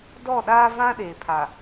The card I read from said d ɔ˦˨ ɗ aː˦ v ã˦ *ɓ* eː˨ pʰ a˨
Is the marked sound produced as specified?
no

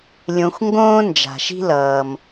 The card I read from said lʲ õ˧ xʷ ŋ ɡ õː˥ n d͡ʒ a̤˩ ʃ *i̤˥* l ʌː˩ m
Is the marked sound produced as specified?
yes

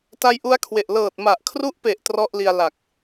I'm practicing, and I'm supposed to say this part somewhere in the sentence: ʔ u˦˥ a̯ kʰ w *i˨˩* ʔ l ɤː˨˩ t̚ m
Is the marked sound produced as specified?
no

